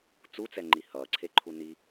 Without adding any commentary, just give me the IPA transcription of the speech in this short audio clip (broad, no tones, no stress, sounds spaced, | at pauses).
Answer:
t͡s u t͡s ɛ ŋ͡ǃ i h ʌː ǀʰ e ǃʰ u n i